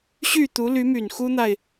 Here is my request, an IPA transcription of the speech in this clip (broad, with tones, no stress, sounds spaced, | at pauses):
ɕ y˥˩ t̪ u˧˥ l y˧˥ m y˨˩ n x u˥ n̪ a˨ ɪ̯